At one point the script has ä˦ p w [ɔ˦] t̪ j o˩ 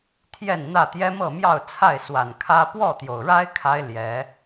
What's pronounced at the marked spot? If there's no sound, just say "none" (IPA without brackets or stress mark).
ɔ˥˨